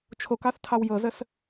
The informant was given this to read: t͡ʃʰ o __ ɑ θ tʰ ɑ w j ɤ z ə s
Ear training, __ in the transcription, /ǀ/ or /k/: k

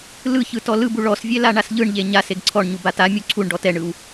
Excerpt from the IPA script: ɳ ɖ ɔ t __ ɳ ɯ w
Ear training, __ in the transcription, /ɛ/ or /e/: ɛ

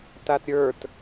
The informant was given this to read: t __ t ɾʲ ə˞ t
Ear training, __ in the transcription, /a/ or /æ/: a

